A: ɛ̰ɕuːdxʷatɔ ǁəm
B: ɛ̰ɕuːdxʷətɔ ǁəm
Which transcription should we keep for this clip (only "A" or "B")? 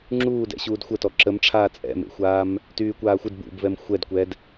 B